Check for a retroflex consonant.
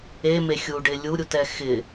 present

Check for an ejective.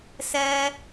absent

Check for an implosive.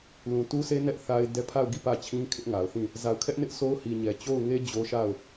absent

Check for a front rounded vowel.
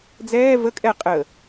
absent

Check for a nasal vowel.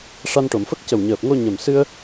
absent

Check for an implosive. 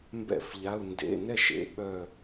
present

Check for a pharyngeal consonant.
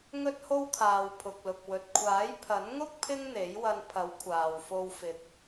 absent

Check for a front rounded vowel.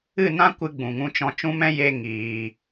absent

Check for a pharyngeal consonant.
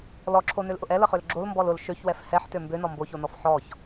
present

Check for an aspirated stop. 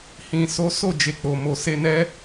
absent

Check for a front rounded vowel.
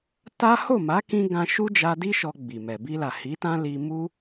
absent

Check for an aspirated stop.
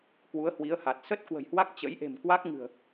absent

